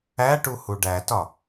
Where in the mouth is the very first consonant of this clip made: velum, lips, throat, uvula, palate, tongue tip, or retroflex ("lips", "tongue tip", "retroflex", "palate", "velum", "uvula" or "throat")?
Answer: retroflex